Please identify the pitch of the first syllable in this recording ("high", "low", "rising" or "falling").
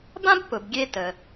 high